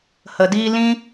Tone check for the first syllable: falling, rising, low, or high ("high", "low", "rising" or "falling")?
low